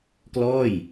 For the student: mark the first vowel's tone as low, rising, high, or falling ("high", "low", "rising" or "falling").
falling